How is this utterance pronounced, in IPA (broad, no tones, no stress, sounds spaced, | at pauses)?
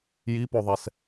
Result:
j i p o ðˤ ɛ s